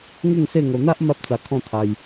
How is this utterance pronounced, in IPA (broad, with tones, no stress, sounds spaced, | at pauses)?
ŋ u˥˧ ŋ s e˥˧ ŋ o˧ n̪ a˦ ʔ m a˦ p̚ t͡s a˧ kʰ ɔ̃˥˧ t̪ʰ a˧ j